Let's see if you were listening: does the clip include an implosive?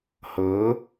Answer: no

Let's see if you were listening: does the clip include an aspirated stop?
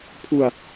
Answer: yes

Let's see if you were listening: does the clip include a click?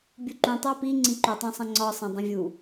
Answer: yes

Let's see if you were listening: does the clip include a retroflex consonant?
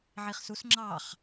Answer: no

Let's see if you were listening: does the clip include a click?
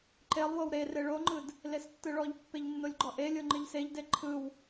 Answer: yes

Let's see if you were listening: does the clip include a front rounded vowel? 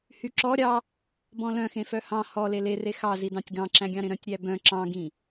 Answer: yes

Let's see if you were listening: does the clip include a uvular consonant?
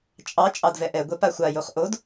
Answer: yes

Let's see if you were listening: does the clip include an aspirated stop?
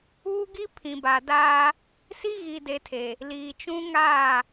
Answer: yes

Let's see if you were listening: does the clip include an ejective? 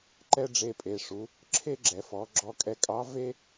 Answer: yes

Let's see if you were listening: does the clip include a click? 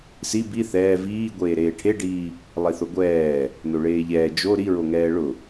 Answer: no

